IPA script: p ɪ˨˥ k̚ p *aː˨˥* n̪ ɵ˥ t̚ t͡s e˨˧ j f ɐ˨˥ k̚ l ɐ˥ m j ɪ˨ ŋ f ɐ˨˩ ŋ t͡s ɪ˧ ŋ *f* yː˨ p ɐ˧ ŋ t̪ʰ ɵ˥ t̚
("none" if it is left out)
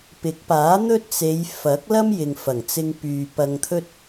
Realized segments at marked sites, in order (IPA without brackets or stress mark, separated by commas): aː˨˥, p